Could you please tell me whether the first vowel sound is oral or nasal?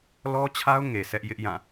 oral